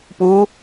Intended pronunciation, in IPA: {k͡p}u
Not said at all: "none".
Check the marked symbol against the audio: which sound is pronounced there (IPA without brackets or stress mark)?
p